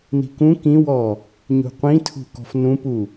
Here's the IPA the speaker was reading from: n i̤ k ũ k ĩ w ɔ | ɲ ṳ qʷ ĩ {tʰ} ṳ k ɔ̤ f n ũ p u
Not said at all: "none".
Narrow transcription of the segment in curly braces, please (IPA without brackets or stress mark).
tʰ